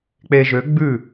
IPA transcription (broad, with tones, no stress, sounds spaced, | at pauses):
k͡p e˧ ʒ ø˨˥ ɡ͡b ʉ˥˩